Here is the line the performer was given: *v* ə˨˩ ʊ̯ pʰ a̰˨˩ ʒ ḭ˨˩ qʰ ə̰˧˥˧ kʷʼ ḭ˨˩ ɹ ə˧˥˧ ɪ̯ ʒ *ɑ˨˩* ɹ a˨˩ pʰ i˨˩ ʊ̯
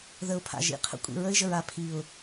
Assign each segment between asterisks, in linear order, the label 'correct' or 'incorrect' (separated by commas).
incorrect, incorrect